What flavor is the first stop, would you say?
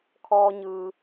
aspirated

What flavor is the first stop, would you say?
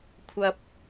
aspirated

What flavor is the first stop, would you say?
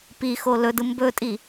plain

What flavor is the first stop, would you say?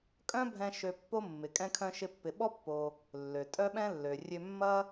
ejective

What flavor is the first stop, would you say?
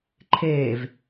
click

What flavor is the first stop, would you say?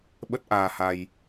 implosive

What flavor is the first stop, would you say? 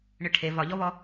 aspirated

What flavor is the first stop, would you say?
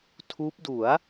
aspirated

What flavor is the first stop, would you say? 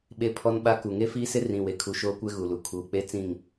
implosive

